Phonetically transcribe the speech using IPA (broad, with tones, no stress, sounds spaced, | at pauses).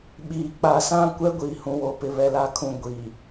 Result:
ɓ iː˨ k͡p a˨ s ã˦ kʷ ɛ˦ ɡʷ iː˨ h ũ˨ w o˨ p ɪ˨ β ɛ˨ l a˨ kʰ ũ˨ ɡʷ i˨